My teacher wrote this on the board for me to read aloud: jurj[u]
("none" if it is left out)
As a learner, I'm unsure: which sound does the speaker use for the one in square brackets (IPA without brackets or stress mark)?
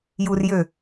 ø